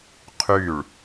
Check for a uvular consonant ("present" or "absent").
present